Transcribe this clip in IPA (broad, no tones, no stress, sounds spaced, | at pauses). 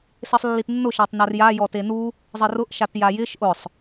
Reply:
s e sˤ lː i t nː ʊ ʃ a tˤ n a r j a j ɔ t e n u | zˤ ɪ r ʊ ʔ ʃ a t j a j ɪ ʃ ʔ ʊ sˤ